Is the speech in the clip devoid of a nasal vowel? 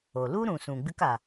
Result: no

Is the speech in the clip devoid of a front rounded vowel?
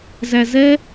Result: yes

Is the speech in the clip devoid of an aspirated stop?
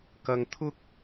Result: no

